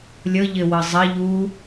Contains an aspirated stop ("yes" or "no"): no